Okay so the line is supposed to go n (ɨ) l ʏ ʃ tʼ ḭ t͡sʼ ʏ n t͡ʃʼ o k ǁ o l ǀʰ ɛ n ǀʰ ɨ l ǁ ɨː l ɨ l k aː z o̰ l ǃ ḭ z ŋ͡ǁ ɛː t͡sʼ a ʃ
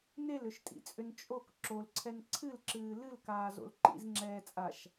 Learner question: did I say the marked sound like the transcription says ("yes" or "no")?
no